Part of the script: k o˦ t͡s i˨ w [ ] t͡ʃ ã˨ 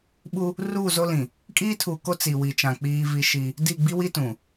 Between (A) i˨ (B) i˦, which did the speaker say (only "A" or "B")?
A